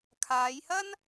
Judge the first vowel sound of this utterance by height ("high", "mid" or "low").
low